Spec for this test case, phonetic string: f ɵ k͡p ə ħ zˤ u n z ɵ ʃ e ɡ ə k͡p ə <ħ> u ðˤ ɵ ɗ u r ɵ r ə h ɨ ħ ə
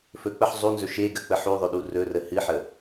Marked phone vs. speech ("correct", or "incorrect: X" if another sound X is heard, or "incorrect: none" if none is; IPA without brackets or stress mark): correct